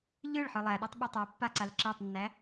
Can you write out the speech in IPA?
ʎɯɭ ħɯlˠæɗætˤ ɓɯtˤapːa ǀalǁetˤnːæ

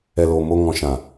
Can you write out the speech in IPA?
ɛ˨loː˨ mo˧ ŋɔ̃˨ʃã˨

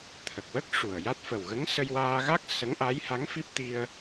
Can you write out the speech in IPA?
t̪ʰə˨˩k̚wə˦˥k̚ ʂu˨˩ə̯ ja˦˥t̚fə˨˩w ɣə˧˥ŋsə˧jwaː˧ɣa˦˥k̚ sə˧˥ŋʔa˧˥j ha˧˥ŋfi˦˥p̚ t̪i˧ə̯

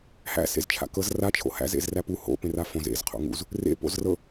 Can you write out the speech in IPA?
hæ̰ sḛzt͡ʃʰa̰kɤz ra t͡ʃʰo̰hæ̰z ḛzræpu ho̰ pẽrafõz ḛz qʰo̰ŋṵz | rḛ po̰zrɤ

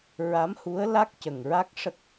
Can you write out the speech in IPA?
ɹa˧˥mhu˧˥ə̯la˦˥k̚ cə˨˩ŋɹa˦˥k̚ʂə˦˥k̚

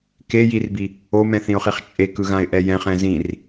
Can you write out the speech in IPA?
kejirbi | omɛ̃θĩʊ̯χiχ t͡ʃʼekɯɣãɪ̯ʔɛ jɛ̃χɛ̃ zĩr

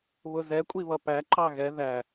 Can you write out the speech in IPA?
βʊzɛ kʷʼiβʌpæ ǃɑɣɛ ðæ

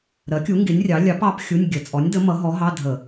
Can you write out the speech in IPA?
ɾɜ˨˥kʲu˨˥ ŋɡi˨˥nʲrʲɑ˨˥ lʲɑ˨˥pɑ˨˥p xʲu˧˥˧nʲ ɡʲə˧˩˧ t͡sʼɔ˨˥nʲdə˨˥mʌ˨˥ ɦɔ˨˥ɦɑ˧˥˧dʱə˧˩˧

